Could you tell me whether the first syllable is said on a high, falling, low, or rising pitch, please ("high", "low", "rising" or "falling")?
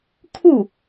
falling